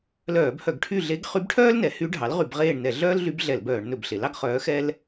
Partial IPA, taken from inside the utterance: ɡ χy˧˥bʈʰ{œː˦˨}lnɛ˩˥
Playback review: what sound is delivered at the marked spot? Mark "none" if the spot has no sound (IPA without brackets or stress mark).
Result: œː˥